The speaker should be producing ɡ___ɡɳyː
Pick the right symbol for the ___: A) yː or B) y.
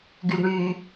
B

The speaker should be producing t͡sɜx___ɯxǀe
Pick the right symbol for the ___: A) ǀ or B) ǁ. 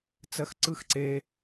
A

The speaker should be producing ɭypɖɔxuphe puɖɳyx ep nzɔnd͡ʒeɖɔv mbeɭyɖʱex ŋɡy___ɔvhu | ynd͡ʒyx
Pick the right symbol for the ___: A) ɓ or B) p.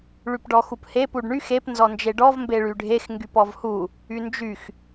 B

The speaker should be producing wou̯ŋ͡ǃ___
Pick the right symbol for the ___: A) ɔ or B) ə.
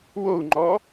A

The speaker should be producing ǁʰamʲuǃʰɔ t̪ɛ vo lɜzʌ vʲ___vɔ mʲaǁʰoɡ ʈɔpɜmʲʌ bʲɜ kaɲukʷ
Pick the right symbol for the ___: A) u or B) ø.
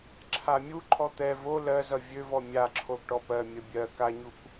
B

